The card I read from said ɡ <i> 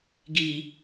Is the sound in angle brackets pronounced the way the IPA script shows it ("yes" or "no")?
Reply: yes